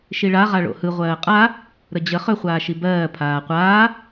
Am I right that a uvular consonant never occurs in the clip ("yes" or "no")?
no